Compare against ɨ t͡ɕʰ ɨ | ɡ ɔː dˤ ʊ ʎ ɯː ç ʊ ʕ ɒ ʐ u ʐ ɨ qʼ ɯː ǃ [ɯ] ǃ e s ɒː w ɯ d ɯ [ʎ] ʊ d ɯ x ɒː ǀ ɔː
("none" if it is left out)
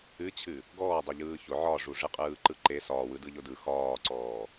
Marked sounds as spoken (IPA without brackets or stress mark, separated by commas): ɯ, ʎ